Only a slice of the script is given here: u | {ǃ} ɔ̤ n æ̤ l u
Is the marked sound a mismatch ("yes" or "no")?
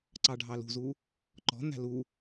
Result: no